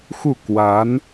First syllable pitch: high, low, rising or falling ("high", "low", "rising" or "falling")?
falling